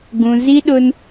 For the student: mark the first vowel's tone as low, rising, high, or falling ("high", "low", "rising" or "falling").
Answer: high